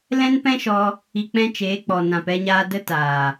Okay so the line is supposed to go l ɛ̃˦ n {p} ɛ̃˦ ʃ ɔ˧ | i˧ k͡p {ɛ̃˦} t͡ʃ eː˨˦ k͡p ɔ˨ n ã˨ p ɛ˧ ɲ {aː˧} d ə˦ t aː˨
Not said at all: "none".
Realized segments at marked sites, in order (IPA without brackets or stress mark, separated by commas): p, ɛ̃˦, aː˧